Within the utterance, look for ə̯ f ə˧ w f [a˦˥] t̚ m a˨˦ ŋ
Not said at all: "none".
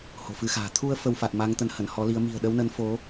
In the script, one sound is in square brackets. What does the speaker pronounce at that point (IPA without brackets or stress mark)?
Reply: a˨˩